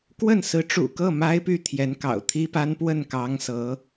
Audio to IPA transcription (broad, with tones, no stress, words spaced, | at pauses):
kwə˥˩n sɹ̩˧˥ʈ͡ʂṵ˨˩kɤ˥˩ ma˥ɪ̯py˥˩ t̪ʰjɛ˧˥nkɑ̰˨˩ʊ̯t̪ʰi˥pa˥n pwə˥˩nkɑ˧˥ŋ sɤ˧˥